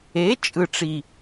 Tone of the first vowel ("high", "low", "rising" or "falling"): rising